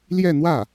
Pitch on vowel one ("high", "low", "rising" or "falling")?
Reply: falling